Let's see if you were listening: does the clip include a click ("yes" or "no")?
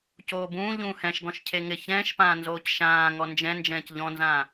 no